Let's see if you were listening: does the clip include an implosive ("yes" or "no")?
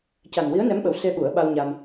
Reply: yes